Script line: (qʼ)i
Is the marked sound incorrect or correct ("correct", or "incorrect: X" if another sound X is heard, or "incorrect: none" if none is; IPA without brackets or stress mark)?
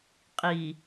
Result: correct